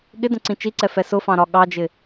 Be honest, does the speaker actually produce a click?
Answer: yes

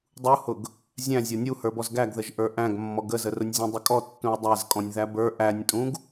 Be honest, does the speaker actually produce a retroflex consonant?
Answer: no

